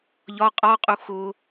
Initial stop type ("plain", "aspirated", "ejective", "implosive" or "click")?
ejective